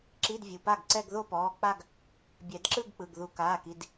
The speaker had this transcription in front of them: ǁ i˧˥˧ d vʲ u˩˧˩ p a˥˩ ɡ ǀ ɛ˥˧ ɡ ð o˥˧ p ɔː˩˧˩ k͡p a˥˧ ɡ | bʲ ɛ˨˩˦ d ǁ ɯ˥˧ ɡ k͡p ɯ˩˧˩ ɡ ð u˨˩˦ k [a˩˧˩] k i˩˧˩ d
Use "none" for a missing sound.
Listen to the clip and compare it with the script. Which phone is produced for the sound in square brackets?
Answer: aː˩˧˩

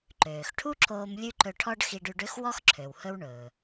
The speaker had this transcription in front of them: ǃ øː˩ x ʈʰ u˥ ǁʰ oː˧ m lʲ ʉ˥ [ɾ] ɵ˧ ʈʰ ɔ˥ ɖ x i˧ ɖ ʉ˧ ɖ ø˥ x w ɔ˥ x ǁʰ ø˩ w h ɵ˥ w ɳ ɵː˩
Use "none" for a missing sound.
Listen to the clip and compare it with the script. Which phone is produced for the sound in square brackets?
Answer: ǃ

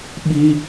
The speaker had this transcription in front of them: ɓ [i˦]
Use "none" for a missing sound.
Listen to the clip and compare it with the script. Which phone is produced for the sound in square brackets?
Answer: i˦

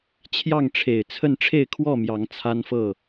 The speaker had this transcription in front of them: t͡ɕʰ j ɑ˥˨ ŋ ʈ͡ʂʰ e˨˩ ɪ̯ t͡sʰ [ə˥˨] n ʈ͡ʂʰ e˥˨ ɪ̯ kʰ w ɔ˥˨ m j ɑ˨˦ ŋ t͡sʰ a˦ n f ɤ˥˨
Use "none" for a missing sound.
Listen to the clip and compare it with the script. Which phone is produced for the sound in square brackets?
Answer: ə˥˨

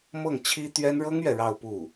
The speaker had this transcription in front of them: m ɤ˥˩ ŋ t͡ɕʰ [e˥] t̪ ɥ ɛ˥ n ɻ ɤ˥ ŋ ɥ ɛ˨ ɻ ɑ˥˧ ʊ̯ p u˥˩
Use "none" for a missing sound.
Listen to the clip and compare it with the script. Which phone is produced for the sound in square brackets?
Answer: i˥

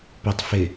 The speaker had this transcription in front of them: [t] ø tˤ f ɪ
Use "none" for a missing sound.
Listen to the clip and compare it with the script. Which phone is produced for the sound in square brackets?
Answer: p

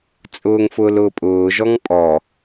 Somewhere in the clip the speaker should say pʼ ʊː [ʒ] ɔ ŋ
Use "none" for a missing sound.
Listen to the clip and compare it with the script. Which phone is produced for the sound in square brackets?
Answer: ʒ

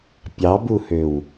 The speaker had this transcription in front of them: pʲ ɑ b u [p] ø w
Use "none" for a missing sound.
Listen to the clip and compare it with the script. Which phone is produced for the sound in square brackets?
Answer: h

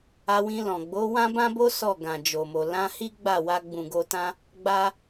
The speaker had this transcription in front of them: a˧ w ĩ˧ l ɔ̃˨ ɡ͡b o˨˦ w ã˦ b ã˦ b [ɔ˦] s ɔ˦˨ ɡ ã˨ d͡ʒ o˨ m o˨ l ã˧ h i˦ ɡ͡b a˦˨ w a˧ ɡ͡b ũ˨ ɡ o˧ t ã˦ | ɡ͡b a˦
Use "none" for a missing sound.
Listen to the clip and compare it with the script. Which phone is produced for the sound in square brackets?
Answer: o˦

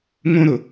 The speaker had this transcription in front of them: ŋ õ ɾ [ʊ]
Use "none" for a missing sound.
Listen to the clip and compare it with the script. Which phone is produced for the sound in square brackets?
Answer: ʊ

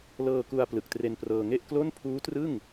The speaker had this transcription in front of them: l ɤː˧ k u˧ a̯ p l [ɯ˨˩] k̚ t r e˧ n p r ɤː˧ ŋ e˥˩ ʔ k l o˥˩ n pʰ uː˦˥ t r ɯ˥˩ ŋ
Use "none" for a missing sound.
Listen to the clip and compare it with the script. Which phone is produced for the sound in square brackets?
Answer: ɯ˨˩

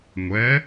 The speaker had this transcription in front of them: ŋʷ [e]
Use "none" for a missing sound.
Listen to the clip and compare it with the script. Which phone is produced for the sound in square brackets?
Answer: ɛ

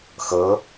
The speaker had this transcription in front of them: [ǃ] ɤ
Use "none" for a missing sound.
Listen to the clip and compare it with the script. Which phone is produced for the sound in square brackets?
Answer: x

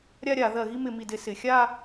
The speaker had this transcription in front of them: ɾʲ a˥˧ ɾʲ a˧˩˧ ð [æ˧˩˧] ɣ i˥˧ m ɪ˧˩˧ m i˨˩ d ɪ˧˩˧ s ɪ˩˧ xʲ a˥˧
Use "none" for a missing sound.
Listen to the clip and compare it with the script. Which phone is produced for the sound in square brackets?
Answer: ɜ˧˩˧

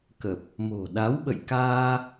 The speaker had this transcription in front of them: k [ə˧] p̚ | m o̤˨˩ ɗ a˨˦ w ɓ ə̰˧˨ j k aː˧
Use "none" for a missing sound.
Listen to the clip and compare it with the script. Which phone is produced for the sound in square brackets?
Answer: ə˨˩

